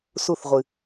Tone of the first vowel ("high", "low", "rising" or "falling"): falling